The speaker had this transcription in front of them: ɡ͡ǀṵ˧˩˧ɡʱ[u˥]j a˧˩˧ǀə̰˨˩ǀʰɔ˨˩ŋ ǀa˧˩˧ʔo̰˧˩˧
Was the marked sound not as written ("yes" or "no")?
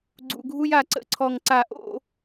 no